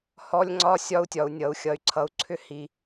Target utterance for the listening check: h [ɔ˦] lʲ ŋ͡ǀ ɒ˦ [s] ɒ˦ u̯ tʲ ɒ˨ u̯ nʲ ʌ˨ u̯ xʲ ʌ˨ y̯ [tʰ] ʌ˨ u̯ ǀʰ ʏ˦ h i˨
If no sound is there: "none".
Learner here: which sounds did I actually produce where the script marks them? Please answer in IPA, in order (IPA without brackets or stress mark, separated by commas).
ɔ˦, sʲ, ǀʰ